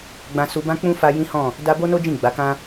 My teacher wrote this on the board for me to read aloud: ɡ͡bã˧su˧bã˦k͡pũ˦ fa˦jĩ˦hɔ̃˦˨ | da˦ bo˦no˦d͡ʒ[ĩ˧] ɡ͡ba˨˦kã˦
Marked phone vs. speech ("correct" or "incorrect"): incorrect